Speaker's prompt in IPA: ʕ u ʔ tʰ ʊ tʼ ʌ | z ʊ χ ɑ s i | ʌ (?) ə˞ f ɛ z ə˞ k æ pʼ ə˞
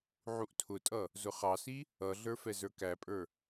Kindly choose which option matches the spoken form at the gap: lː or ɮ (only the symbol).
ɮ